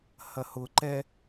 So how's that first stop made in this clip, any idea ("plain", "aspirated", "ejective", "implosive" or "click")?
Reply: click